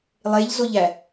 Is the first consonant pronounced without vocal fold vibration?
no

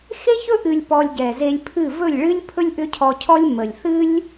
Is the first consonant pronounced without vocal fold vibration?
yes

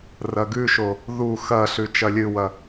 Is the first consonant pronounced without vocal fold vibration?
no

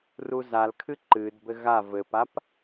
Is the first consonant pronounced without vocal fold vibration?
no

